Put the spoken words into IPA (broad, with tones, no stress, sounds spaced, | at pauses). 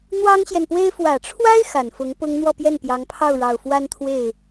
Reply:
n̪ w ɑ˥ ŋ ɕ j ɛ˨ n p w e˥ ɪ̯ f w ä˨˩ ʈ͡ʂʰ w a˥ ɪ̯ x a˨˩ n f ʊ˧˥ ŋ p ʊ˥ ŋ n̪ w ɔ˥˧ p j ɛ˥˩ n p j ɑ˧˥ ŋ pʰ ɑ˥˩ ʊ̯ ɻ ɑ˨˩ ʊ̯ f w a˥ n t̪ʰ w e˥˩ ɪ̯